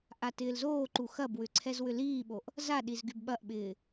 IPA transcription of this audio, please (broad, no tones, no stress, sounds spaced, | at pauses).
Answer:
ʔ a t ɪː l z oː ǃ u x ɐ b w ʏ ǀʰ ɛ z w ʏ l iː ɓ o ʔ | z a ɗ i z ɡ y b ɓ ɐ ʔ ɓ ɪː